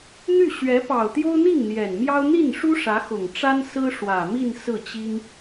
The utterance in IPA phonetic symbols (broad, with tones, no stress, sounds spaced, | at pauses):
n̪ y˥˩ ɕ ɥ ɛ˧˥ p ɑ˨˩ ʊ̯ t̪ j o˥ ʊ̯ n̪ i˥˩ ŋ n̪ j ɛ˨˩ n m j ɑ˥ ʊ̯ n̪ i˥˩ n ʂ u˥ ʂ ä˧˥ x ʊ˨˩ ŋ ʈ͡ʂ a˥ n s ɹ̩˥ ʂ w ä˨˩ m i˥˧ n s ɹ̩˥˩ t͡ɕ i˥ ŋ